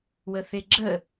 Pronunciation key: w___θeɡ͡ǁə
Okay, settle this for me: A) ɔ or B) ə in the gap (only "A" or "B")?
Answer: B